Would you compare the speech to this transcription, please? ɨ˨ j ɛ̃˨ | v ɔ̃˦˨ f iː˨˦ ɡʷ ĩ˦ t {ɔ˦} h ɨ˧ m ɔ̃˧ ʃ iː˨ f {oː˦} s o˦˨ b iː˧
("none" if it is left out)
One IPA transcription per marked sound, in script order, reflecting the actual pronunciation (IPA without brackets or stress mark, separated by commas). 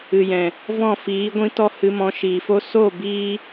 ɔ˦, o˦